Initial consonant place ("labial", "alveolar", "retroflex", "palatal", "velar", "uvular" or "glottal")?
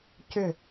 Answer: palatal